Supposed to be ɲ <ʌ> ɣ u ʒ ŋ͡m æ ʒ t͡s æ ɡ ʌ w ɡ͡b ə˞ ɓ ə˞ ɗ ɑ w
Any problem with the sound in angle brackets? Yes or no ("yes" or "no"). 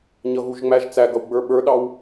no